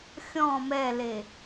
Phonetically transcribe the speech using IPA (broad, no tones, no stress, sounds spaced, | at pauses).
xʲ ɔ̃ m ɛ l e